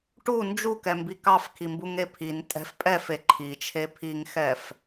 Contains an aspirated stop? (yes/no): yes